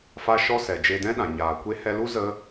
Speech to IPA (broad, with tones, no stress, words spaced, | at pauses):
fa˧ʃɔ˧sɛ˨ d͡ʒe˧dɛ̃˦ɗã˨ ɲaː˨kʷe˦ hɛ˧lu˦ zə˦